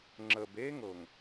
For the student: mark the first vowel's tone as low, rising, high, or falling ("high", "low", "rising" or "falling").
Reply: low